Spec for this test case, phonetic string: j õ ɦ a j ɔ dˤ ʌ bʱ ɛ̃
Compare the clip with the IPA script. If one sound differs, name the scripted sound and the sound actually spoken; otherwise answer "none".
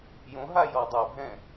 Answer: ʌ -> a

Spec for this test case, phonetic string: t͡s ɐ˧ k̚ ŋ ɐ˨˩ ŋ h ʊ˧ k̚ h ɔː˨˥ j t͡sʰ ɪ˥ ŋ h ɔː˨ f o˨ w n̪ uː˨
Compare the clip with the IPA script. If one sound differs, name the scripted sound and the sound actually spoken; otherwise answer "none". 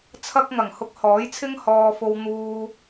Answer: t͡s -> t͡sʰ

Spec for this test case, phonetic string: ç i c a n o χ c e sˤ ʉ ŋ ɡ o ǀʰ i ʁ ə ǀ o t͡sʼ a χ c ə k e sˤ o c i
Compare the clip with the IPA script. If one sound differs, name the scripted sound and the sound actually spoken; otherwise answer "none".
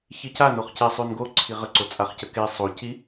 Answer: ŋ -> n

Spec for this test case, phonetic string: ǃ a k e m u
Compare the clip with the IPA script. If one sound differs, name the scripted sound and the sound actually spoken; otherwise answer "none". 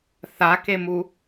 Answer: ǃ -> θ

